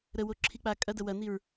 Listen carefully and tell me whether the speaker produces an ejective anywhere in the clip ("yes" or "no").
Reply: yes